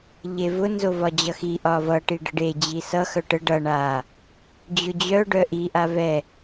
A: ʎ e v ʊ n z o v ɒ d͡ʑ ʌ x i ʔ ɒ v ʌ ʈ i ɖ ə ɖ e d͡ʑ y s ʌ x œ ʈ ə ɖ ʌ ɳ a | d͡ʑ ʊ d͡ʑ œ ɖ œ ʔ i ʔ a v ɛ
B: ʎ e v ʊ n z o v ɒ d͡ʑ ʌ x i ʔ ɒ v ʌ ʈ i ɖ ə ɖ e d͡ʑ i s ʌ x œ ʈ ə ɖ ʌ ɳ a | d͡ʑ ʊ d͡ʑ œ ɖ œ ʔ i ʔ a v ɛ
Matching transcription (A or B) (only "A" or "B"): B